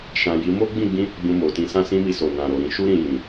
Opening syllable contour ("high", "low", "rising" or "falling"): low